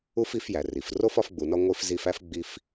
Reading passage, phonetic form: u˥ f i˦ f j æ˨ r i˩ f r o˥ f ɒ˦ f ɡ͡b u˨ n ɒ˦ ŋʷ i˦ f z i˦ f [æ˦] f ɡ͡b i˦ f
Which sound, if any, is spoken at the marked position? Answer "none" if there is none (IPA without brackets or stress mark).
æ˥